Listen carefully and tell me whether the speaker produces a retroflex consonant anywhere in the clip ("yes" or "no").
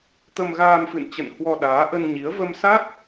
no